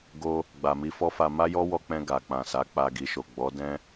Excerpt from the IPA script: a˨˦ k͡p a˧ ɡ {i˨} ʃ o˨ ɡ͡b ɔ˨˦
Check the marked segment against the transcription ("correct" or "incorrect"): correct